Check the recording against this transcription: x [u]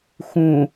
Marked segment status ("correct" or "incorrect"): incorrect